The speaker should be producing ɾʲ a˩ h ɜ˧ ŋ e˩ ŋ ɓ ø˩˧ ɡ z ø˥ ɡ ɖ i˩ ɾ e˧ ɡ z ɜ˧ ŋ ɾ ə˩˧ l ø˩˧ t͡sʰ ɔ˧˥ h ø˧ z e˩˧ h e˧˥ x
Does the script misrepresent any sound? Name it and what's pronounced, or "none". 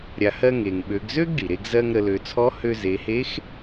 none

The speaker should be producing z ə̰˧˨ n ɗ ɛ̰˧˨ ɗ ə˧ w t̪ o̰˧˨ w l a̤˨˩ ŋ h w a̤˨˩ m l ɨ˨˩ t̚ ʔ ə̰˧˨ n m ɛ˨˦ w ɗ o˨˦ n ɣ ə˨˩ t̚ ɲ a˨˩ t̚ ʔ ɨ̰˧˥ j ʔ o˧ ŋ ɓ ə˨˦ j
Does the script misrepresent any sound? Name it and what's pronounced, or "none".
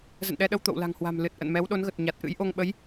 ɛ̰˧˨ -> ɛ˧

